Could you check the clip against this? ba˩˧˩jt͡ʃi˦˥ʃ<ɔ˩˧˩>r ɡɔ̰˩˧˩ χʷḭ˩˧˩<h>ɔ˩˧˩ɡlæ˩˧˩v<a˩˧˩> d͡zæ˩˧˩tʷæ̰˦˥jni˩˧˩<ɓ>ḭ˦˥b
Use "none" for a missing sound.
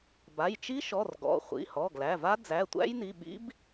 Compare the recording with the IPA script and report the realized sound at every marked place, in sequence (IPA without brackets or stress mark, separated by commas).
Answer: ɔ˩˧˩, h, a˦˥, ɓ